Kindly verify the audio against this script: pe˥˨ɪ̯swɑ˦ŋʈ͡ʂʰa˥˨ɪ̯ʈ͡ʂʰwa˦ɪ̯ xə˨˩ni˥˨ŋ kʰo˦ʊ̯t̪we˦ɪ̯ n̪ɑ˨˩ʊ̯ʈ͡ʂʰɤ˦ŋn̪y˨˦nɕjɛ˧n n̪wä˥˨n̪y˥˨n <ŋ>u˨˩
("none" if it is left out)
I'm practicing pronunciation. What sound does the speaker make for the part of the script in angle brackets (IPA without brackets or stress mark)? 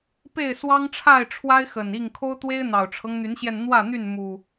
m